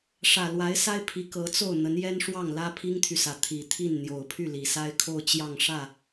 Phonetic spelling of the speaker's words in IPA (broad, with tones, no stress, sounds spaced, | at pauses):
ʂ ä˨˩ l w a˧˥ ɪ̯ s a˥ ɪ̯ pʰ i˧˥ k ɤ˧˥ t͡s o˥˩ ʊ̯ n̪ ə˧˥ n j ɛ˥ n ʂ w ɑ˥˩ ŋ l ä˥ pʰ i˥ ŋ t̪ʰ y˨ s ä˧˥ t̪ʰ i˨˩ t̪ʰ i˥˩ n n̪ j o˨˩ ʊ̯ pʰ y˥˩ l i˨˩ s a˥ ɪ̯ kʰ o˥˧ ʊ̯ t͡ɕ j ɑ˥˧ ŋ ʂ ä˥˩